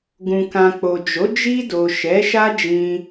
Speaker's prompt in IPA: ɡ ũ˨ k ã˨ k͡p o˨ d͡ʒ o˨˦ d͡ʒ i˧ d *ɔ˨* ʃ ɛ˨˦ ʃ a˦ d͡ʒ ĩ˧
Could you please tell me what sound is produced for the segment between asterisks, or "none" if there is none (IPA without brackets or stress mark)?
o˨